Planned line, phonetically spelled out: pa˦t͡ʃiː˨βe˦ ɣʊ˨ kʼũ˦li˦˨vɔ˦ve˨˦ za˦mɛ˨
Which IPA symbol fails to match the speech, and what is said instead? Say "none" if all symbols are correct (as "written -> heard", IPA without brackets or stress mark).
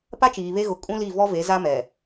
none